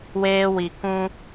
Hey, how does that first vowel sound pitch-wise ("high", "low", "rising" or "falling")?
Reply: high